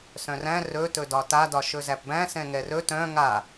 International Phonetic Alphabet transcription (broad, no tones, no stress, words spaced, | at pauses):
sœ̃ræ̃ rɵ tɵdɒta dɒʃɵzæpbæ̃ sɛ̃ŋɛrɵ tœ̃ ŋa